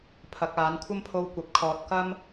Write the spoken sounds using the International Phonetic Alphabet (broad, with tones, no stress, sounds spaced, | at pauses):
pʰ ɐ˨˥ k̚ aː˨˥ n kʷʰ ɐ˥ m pʰ o˧ w kʷ ɐ˨ p̚ kʰ ɔː˨ t̚ k ɐ˥ m